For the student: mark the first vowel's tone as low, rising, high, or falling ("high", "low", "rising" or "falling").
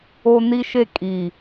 high